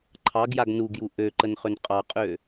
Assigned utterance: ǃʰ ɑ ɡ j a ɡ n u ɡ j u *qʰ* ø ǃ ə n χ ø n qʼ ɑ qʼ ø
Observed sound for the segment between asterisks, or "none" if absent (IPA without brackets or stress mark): ʔ